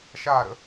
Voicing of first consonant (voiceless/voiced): voiceless